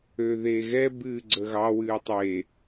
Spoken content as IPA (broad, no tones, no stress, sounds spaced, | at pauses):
ø ð eː ɣ ɛ b ɨː ɡ͡ǀ ə ɣ ɑ w ɨː tˤ e